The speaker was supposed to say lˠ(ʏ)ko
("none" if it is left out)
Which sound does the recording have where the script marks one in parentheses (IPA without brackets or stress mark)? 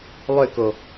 ʏ